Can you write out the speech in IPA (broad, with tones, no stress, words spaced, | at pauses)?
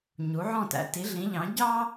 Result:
ɲu˩˥ʕɔ̃˥˩tæ̰˧ ti˩˥ɮĩ˩˥ʎɑ̃˩˥ ɟɑ˥